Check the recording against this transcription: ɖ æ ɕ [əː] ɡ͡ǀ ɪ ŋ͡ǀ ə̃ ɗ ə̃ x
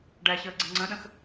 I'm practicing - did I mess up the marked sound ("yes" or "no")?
no